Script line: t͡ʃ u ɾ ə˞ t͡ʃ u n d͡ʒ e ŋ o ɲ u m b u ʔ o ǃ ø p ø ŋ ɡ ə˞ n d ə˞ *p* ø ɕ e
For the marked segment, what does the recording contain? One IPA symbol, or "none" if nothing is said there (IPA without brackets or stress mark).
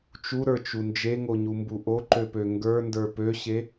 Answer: p